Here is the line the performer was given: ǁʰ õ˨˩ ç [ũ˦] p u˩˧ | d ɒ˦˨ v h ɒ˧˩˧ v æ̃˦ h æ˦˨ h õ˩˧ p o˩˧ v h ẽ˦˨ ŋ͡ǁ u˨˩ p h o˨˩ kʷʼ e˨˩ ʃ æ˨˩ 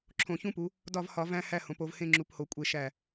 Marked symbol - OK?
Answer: yes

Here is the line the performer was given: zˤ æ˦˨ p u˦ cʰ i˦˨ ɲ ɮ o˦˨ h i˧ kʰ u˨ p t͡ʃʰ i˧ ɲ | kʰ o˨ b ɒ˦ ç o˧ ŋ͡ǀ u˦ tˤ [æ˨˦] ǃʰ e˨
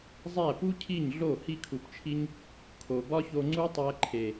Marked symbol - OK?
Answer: no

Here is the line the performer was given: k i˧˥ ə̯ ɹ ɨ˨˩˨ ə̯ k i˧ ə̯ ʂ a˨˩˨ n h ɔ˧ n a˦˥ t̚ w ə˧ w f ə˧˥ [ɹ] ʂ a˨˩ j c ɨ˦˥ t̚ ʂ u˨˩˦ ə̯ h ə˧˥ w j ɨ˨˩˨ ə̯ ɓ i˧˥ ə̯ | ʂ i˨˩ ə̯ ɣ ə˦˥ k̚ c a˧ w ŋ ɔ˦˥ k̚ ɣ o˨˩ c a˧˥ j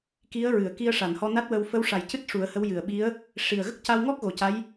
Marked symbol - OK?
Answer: no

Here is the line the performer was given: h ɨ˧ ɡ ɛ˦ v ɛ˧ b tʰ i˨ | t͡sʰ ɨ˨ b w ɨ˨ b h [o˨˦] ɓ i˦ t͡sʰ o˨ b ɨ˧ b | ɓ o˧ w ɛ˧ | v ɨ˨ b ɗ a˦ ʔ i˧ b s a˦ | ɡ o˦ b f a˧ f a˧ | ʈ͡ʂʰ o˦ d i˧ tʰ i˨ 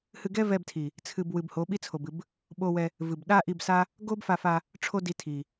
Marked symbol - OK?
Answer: yes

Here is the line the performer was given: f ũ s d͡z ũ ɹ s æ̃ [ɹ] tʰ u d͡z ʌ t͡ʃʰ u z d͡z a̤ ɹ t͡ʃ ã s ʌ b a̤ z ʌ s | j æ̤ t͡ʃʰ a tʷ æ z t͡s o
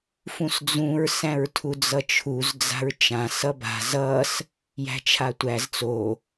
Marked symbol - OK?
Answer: yes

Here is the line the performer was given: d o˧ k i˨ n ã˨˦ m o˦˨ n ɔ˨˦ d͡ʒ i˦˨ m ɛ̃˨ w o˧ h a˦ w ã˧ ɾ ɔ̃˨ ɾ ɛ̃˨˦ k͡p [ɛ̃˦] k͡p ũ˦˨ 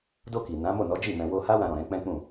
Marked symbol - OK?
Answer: yes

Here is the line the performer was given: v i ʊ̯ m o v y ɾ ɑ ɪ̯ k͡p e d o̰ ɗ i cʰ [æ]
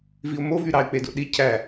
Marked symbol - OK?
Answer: yes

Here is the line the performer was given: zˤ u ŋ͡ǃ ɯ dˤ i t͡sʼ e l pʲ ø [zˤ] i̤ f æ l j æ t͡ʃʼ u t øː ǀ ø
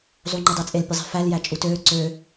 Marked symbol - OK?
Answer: yes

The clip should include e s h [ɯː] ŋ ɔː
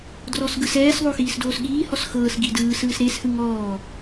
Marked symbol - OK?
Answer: no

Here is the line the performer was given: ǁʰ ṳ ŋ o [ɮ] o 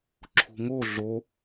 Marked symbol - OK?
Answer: yes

